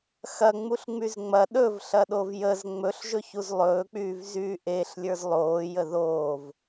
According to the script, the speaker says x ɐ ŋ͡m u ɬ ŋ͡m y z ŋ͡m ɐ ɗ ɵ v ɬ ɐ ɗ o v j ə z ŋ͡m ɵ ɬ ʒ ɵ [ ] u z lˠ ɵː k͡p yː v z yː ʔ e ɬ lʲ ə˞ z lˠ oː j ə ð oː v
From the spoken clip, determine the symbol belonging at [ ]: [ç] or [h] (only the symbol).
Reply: ç